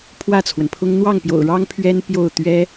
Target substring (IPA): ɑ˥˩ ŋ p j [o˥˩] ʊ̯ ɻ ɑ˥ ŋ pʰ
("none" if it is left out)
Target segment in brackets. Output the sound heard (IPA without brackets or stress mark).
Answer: o̰˨˩